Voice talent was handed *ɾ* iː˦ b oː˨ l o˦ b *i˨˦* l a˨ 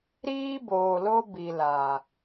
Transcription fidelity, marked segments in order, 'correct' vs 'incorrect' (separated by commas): correct, incorrect